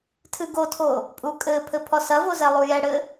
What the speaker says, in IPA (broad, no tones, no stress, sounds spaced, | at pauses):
tʰ ɨ ɡ o tʰ o | pʼ u kʼ ɘ pʰ ɘ pʰ ɔ s ɐ v o z ɛ lˠ u j ɛ ɽ ɘ